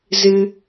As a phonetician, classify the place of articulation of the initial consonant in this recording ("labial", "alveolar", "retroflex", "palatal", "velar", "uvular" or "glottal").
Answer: alveolar